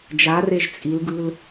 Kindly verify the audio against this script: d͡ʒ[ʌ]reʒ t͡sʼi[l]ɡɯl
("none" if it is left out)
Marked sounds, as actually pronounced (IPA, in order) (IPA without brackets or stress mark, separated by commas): a, l